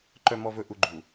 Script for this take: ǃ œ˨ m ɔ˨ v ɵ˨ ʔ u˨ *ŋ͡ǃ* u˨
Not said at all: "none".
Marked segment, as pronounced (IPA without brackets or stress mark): ɡ͡ǃ